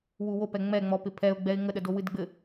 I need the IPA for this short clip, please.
wuwopɛ ŋ͡mɛŋ͡mɔpɪ pʰɛʊ̯ɡ͡bɛɪ̯ ŋəɗədo wɨdɡ͡bɘ

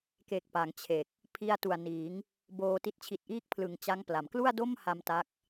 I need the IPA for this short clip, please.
ke˨˩k̚ pa˩˦ŋt͡ɕʰe˨˩k̚ | pʰi˧a̯tu˨˩a̯niː˩˦ŋ | boː˧ti˦˥t̚ t͡ɕʰi˨˩t̚ʔiː˦˥k̚pʰlɯ˨˩ŋ t͡ɕa˦˥ŋpla˩˦m klu˥˩a̯do˥˩mha˧m ta˦˥k̚

